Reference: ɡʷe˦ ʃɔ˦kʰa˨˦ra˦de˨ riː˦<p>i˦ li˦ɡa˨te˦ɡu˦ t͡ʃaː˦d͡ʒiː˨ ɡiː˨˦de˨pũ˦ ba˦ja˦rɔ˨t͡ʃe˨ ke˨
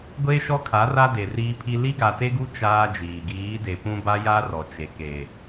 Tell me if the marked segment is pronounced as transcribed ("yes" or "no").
no